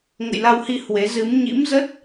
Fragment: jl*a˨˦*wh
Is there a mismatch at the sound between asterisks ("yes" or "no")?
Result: yes